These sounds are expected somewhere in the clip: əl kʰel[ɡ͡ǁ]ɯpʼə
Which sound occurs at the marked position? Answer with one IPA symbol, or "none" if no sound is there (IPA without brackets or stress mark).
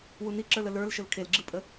ɡ͡ǁ